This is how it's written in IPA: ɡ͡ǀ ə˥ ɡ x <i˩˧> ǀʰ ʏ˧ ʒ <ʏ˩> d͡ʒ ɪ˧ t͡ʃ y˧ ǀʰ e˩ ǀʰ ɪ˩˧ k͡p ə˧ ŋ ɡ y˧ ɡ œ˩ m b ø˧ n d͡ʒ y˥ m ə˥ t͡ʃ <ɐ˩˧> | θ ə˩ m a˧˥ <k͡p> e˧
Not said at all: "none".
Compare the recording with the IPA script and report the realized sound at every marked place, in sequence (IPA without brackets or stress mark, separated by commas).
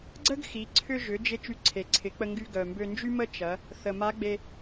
i˩˧, ʏ˩˧, ɐ˩˧, ɡ͡b